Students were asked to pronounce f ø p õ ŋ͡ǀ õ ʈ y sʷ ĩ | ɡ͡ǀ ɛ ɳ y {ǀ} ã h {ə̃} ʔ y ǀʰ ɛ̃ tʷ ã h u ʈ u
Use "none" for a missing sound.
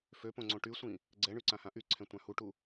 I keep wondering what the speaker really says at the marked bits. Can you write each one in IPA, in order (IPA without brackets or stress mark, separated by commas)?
ǀ, ã